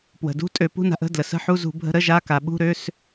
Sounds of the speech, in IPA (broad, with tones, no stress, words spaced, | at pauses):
pwə̤˩ dṳ˧˥˧tʼø˧˩˧ pṳ˧˥˧na̤˧˩˧ʔə̤˧˥˧ dlə˩sə̤˧˥˧ħu˧˥˧ zṳ˧˩˧bʱə̤˧˥˧ ɾə˧˥˧ ʒa˧˥˧ka˩ ɓṳ˧˥˧ɾø˧˥˧s